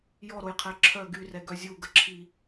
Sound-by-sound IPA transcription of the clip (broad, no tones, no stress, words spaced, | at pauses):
jɔɾojqʰɛ ǁʰœ ɡyrɛɡœ zʲuɡəǁʰi